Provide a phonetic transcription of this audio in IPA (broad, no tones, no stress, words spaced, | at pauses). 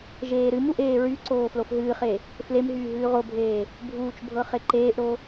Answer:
ʒeːɾɨmuʔ eːɹyǀoː flofɦɨːχe | flemɦyː ɦʉːʁobʱeː | bʱuːt͡ʃbʱɤ χeǃeːʔɾo